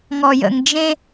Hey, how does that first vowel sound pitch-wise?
low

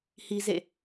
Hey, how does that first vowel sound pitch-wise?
high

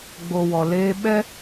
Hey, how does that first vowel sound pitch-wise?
low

